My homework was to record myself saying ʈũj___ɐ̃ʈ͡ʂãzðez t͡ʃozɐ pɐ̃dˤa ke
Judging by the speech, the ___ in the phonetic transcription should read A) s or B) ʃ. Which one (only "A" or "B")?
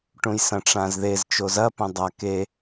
A